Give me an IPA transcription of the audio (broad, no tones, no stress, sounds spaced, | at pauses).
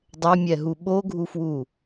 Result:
dˤ ɛ mʲ ɛ ɦ u ɓ o ɡʱ u f w u